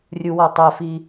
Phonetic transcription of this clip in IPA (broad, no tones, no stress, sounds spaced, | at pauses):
rʲ u w ʌ tˤ ɛ f i